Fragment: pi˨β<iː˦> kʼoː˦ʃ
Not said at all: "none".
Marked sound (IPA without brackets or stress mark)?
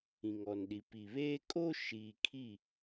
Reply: eː˦